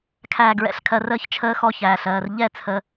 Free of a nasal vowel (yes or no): yes